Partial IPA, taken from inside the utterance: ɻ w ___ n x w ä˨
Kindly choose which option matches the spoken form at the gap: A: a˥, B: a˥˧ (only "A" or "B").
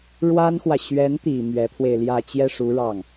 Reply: A